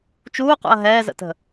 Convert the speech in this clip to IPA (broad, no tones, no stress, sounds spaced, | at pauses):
t͡ʃ uː q ṵ ɐ̯ ɦ ɛː z ə̰ t ə̤